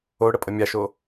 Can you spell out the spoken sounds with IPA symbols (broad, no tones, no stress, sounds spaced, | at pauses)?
o ɽ ə pʼ ə mʲ a ʃ o